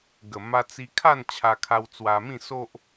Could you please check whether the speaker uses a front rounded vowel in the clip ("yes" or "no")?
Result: no